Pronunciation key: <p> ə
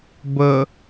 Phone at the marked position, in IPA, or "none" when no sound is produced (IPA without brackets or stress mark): b